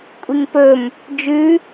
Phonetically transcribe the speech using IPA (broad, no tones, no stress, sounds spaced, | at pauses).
kʷʼ i ŋ p ɵ m | d͡ʒ ʉ